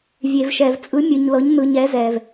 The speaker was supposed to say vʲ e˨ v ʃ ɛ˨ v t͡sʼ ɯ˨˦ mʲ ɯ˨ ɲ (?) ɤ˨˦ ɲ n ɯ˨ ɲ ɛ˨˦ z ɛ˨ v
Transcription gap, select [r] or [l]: l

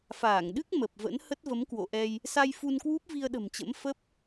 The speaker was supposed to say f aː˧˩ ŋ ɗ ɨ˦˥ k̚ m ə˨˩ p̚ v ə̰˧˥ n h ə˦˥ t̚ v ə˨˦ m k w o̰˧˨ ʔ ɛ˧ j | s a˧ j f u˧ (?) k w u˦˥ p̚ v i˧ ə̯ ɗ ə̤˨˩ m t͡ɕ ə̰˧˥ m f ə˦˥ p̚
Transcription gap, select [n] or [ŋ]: n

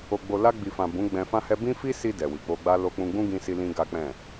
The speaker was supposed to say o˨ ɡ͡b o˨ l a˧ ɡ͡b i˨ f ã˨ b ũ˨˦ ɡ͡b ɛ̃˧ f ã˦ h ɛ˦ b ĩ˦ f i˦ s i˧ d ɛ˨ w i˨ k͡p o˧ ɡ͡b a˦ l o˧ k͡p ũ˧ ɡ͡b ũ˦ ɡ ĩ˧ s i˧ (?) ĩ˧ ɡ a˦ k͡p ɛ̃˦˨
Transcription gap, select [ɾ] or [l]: l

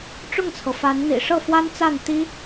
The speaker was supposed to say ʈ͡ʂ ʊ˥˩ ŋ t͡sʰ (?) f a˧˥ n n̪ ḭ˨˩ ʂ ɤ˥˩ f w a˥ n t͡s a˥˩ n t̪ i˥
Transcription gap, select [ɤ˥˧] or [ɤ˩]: ɤ˩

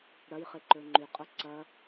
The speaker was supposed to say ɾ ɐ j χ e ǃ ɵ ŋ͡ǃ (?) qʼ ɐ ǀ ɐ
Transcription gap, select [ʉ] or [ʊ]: ʉ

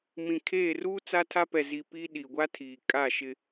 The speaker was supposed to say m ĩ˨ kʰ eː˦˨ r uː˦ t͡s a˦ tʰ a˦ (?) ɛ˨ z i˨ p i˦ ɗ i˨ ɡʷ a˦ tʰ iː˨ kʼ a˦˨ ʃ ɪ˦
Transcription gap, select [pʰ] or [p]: p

